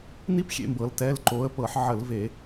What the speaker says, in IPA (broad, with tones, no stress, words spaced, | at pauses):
ni˥pxʲḛ˧˩˧mbɤ˩˧l tɛ˩˧˩lǃo˩˧ə̯ pɤ˧˩˧ħʕə˧˩˧lve˧˩˧